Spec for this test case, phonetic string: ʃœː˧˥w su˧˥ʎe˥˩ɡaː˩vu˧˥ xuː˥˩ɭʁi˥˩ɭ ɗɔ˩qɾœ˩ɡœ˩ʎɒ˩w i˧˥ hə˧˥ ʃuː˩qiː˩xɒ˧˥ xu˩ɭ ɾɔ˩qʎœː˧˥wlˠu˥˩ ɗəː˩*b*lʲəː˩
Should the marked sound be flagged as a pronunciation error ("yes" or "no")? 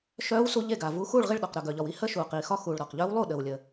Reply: yes